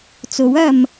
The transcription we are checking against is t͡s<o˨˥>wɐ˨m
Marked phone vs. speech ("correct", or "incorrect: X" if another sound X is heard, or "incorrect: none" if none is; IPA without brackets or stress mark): correct